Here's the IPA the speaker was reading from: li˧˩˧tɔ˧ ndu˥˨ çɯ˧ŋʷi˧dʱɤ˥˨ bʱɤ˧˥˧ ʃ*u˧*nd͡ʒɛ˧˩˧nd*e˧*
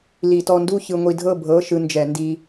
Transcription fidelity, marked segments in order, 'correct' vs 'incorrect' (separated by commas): incorrect, incorrect